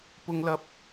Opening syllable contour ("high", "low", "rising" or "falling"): high